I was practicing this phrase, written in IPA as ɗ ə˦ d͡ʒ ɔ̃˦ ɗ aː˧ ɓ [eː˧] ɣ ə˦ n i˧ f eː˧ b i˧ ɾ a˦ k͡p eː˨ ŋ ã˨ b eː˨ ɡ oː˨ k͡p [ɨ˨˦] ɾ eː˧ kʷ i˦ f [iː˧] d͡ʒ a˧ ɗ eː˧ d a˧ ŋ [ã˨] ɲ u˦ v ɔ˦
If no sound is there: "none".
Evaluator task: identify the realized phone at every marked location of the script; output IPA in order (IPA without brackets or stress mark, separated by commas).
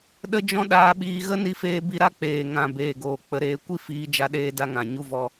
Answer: iː˧, ə˨˦, iː˧, ã˨